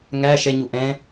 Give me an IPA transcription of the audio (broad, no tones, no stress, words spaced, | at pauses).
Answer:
ŋæ ʃɛɲu ʔɛ̃